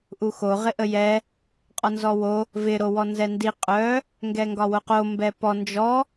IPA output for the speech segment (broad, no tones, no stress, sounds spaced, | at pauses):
ʔ u x o ʁ ɪ ʔ ə j ɛ | qʼ ɒ n z ɔ w o | v ɪ ɾ o w ɔ n z ɛ n d i qʼ œ | ŋ ɡ ɛ ŋ ɡ ɒ w o q o m b ɛ p ɔ n d͡ʒ ɔ